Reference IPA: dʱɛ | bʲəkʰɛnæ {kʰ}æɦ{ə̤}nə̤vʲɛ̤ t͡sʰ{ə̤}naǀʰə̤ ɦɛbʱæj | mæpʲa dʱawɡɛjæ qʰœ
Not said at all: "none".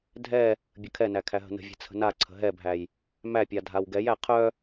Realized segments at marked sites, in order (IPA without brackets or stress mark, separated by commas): kʰ, ə̤, ə̤